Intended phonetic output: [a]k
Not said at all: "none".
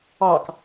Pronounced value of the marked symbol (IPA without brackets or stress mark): ɑ